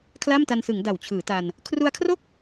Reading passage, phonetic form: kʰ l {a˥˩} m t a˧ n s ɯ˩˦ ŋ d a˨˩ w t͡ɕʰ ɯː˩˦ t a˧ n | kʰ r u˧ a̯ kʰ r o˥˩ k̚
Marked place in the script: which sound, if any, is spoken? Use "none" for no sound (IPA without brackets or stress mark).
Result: a˥˩